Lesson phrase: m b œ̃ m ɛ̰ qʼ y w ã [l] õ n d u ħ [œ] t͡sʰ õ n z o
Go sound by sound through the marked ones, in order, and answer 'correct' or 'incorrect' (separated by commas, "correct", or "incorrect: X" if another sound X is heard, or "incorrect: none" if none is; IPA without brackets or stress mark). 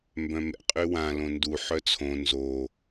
correct, correct